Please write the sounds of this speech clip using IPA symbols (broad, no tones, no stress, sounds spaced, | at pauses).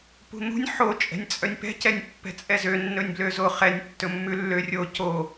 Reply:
p ṳ n̪ ṳ nʲ ħ o t͡ʃʼ ɛ̤ nʲ t͡sʼ œ nʲ p ɛ̤ c ɛ nʲ pː ɛ̤ t͡sʼ ɛ z ø nː ɵ nʲ b l ø z o χ ɛ nʲ tː ɵ mː ʉ lː ø rʲ o c o